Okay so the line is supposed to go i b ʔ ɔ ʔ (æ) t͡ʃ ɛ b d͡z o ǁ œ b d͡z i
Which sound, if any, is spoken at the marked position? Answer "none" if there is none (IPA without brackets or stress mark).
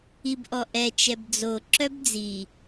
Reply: ɛ